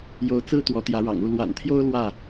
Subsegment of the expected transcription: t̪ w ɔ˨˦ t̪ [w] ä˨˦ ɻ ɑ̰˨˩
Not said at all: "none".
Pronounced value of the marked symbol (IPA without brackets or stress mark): j